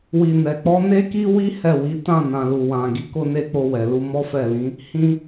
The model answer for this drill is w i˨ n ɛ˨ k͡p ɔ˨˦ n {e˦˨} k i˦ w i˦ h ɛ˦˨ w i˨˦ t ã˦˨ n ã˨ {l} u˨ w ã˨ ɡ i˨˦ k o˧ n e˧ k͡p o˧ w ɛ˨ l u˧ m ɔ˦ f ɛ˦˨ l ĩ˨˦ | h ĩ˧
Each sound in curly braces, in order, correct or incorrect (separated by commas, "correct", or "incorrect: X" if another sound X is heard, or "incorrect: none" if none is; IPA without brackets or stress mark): incorrect: e˦, correct